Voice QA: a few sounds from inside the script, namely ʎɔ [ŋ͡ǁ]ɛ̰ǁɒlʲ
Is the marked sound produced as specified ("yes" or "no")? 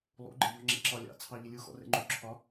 yes